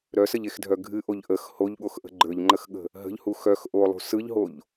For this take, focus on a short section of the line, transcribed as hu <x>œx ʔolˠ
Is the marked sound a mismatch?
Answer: no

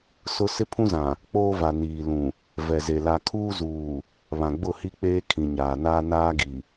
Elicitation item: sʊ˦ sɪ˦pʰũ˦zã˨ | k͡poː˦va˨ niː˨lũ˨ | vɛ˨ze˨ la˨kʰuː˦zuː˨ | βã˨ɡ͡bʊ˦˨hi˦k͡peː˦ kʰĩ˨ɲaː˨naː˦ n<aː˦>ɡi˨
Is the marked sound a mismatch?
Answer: no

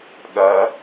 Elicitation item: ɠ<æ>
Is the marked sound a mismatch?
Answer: yes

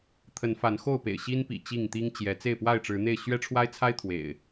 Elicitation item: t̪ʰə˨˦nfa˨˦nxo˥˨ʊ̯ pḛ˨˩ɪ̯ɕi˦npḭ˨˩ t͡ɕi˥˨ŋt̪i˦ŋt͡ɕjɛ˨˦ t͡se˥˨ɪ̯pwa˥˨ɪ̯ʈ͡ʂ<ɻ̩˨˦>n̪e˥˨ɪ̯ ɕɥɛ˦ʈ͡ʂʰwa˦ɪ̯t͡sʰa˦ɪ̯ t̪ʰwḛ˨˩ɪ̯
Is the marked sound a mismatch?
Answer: no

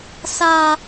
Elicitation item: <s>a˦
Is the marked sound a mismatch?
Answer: no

